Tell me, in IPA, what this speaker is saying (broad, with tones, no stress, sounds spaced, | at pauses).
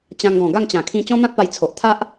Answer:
t͡ɕ ã˧ ŋ ɡ ɔ̃˨˩ ɡ a˥˧ ŋ t͡ɕ ã˨˩ kʰ ĩ˧ t͡ɕ ɔ̃˦ n̪ ã˦ t̚ p a˧ j t͡sʰ o˨ ʔ t̪ʰ a˦ ʔ